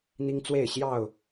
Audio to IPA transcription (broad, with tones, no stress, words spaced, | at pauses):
n̪i˦ŋt͡swe˥˨ɪ̯ɕjɑ˥˨ʊ̯